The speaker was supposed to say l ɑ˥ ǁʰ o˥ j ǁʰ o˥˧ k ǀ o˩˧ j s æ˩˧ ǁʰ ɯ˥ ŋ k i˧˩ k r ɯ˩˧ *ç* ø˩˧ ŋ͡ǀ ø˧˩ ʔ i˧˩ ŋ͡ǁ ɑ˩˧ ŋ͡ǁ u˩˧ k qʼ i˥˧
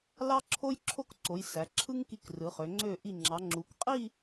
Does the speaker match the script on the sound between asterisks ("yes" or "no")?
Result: no